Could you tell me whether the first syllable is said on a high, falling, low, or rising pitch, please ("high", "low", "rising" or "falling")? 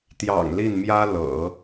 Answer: low